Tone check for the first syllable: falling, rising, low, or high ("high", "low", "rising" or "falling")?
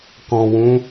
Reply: low